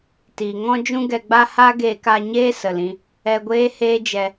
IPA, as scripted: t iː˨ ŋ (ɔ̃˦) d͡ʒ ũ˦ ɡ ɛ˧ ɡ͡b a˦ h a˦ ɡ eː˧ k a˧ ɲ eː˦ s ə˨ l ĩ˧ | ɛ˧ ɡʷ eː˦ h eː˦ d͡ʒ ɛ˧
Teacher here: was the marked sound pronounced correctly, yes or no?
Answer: yes